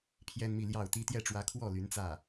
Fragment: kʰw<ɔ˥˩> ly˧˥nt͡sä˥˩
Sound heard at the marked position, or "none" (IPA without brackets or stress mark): ɔ˥˩